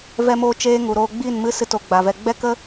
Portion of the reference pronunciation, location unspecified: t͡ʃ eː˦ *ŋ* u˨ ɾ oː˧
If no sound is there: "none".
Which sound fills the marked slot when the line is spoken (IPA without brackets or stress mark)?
ŋ